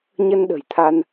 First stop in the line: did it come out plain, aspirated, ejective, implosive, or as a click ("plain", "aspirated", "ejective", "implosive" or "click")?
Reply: implosive